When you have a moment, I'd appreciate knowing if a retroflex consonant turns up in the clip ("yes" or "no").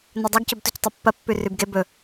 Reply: no